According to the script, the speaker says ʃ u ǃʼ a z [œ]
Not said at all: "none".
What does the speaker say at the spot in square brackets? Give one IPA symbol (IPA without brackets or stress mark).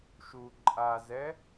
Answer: ɛ